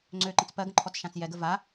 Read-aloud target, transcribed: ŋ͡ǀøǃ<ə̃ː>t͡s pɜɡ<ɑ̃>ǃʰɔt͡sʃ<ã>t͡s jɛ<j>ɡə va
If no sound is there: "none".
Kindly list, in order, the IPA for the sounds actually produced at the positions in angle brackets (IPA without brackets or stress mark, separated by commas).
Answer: ə̃, ə̃, ã, none